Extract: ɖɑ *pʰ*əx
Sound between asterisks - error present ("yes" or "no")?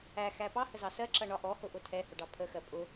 no